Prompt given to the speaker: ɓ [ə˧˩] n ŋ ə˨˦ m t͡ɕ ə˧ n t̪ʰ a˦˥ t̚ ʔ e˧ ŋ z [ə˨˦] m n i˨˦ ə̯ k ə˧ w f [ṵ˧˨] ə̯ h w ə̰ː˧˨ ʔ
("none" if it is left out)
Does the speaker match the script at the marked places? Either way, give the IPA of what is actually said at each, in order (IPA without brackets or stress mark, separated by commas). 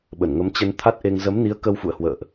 ə˧˩, ə˨˦, ṵ˧˨